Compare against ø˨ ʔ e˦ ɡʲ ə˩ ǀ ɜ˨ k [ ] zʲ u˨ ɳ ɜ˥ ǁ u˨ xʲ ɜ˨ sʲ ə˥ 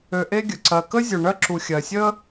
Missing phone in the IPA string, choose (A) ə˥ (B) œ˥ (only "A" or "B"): A